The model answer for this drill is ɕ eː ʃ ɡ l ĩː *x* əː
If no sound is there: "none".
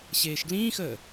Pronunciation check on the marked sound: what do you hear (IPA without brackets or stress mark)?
x